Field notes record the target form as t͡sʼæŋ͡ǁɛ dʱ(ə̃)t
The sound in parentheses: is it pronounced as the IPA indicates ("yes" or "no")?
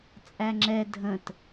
yes